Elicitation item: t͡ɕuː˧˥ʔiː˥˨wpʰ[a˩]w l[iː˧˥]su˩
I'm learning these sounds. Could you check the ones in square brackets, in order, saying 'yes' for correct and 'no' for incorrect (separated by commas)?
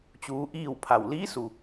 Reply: no, yes